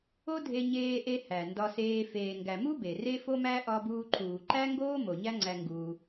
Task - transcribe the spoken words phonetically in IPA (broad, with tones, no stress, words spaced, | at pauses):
o˦dʱe˧ɲeː˧ʔe˧ hæ˨ndɒ˧seː˧ feː˨ŋɡæ˨mu˦ be˨re˦fo˦mæ˦ ʔɒ˦buː˦ ǃʰuː˨ǃæ˦ŋɡoː˦mo˨ ɲæ˦ŋ͡ǀæ˧ ŋɡuː˧